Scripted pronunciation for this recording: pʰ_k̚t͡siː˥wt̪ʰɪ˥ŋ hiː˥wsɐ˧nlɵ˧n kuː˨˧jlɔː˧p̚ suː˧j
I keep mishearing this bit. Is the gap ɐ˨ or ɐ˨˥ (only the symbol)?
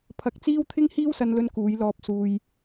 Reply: ɐ˨˥